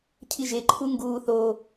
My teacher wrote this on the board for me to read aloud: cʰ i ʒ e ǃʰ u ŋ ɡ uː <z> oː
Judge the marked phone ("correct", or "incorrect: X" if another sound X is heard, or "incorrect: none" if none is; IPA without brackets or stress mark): incorrect: θ